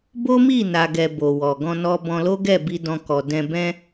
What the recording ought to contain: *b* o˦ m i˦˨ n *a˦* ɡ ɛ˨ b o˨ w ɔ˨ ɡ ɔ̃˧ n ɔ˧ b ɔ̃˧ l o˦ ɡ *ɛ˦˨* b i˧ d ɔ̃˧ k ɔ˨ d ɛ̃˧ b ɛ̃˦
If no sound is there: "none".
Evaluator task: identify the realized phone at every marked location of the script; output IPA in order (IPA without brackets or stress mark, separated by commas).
b, a˨, ɛ˦˨